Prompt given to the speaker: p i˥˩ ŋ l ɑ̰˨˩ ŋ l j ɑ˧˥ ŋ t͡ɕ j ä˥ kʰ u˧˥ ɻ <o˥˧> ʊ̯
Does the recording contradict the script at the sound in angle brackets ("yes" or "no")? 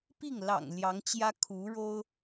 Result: yes